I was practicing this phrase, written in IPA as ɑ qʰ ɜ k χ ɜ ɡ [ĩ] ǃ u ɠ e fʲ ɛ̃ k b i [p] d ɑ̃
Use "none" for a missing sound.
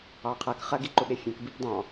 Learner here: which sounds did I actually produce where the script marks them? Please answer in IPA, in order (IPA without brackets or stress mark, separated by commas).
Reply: i, p